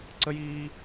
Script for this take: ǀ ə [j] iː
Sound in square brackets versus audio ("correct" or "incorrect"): correct